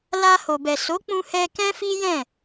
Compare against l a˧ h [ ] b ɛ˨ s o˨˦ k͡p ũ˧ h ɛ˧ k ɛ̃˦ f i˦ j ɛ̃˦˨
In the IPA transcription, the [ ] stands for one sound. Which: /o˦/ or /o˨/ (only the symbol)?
o˨